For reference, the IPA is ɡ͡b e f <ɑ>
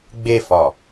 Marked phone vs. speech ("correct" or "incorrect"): incorrect